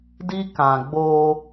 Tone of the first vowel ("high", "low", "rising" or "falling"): high